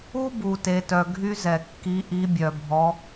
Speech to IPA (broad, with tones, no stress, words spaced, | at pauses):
u˥bu˨te˨tœ˨ ɡʱy˥zɛ˨ kːi˧˥ʔi˧˥ bʲœ˨bʱɔ˧˥